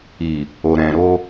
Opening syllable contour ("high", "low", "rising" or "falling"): low